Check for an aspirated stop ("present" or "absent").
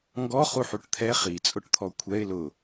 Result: present